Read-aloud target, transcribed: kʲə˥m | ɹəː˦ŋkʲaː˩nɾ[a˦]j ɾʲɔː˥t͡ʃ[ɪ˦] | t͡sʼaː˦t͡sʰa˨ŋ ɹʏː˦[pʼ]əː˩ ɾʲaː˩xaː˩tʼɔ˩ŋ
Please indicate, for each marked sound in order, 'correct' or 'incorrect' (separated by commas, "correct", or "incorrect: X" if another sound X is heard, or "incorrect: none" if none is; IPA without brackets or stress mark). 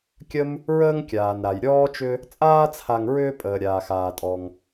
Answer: incorrect: a˩, incorrect: ʏ˦, correct